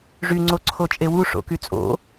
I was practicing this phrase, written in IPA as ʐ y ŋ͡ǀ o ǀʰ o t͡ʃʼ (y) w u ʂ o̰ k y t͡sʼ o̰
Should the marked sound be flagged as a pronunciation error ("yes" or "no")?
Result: yes